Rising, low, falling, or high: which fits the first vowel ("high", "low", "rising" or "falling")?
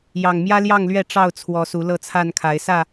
low